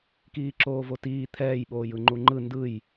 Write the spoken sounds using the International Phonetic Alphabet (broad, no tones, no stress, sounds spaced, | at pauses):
k iː ǁ oː v o t iː t̪ʰ ɛː j ɓ oː j ɯ ŋ͡ǃ u ŋ͡ǃ ɯ n d ɯ j